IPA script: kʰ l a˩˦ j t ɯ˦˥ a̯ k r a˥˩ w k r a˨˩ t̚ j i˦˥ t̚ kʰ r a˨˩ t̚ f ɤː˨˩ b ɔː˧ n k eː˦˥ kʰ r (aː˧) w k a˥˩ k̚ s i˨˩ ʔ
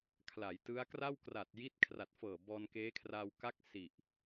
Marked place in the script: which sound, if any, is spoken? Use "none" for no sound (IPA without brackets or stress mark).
aː˧